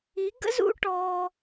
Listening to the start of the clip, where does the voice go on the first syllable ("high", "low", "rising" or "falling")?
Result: rising